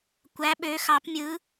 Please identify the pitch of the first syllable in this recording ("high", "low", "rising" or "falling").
rising